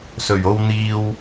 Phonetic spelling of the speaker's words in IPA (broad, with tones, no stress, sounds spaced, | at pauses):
s ɵ˨˩ ɥ o˧ w n̪ iː˧ w